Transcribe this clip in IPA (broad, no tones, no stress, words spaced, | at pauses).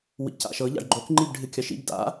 wḭca̰ʃɤ ʎa̰ɖɡ͡ǃok ŋ͡ǃibɖʱɨkʲɐʃḭb da̰